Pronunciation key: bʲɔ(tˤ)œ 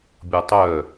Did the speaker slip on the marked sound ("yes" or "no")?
no